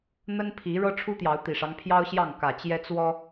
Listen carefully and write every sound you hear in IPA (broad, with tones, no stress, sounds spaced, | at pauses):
n̪ ə˦ n pʰ i˨˦ ɻ ɤ˦ ʈ͡ʂʰ u˦ t̪ j ɑ˨˦ ʊ̯ t̪ i˨˩ ʂ ɑ˦ ŋ pʰ j ɑ˦ ʊ̯ ɕ j ɑ˥˨ ŋ k ä˨˩ t͡ɕ j ɛ˦ t͡s w ɔ˦